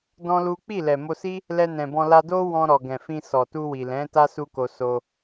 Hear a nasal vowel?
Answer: yes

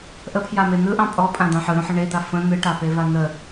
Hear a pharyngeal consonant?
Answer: yes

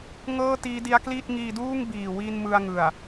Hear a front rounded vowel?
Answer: no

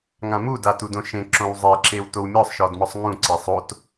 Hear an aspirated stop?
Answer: no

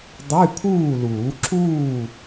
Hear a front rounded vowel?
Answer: yes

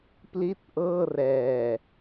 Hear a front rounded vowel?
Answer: no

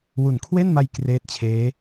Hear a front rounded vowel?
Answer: no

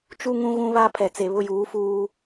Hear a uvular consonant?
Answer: no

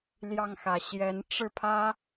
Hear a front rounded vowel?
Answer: no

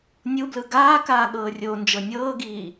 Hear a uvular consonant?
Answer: no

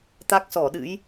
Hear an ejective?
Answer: no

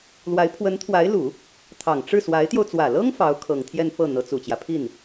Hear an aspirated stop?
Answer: yes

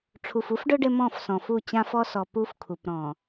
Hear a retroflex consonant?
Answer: yes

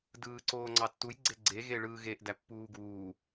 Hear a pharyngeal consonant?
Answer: no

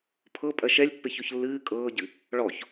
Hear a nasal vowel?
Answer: no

